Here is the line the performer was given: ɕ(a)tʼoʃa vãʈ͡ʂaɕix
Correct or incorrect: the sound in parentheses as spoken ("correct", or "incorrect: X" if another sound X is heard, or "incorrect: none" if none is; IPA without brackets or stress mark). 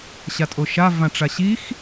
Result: correct